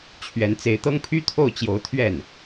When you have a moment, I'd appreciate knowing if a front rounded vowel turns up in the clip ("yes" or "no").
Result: yes